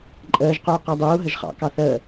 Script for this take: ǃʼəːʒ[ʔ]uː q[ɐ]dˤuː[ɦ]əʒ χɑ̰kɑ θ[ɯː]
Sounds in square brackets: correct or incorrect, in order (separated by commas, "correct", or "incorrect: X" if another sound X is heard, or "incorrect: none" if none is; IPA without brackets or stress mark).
incorrect: q, incorrect: æ, correct, incorrect: əː